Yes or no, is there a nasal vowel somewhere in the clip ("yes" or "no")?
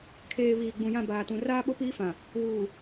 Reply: yes